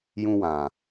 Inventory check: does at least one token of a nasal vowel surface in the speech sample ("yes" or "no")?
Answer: yes